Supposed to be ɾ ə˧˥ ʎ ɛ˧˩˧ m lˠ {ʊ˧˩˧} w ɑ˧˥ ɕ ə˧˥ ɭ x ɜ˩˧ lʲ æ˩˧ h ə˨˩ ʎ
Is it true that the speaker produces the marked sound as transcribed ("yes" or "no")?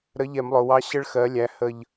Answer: no